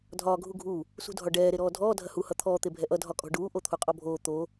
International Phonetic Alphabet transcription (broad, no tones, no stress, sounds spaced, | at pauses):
dʱ ɒː ɡʱ u ɡʱ u | s ṳ dʱ ɒ ɖ ɛː ɾ e ɾ ɔː dʱ ɔː dʱ ɐ h u h ʌ t̪ʰ ɔː t̪ e bʱ ɛ ʔ ʌ dʱ ɒ kʼ ɔ̤ ɖ uː ʔ o t̪ʰ u qʼ ɔ bʱ oː t̪ o